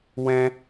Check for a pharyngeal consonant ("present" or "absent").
absent